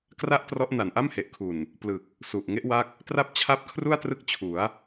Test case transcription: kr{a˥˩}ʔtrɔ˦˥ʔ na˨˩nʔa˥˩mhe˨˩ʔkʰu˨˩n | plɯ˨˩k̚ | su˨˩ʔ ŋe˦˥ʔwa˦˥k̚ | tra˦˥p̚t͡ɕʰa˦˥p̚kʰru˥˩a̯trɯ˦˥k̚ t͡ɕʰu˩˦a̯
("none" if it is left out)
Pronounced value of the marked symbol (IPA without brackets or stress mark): a˥˩